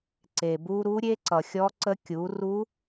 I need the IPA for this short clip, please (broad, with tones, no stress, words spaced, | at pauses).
ǀe˩bu˧ ɾu˧˥ɾʲe˧˥ ǀʌ˩xʲɔ˧˥ǀə˧˥ kʲu˩˧ ru˧˥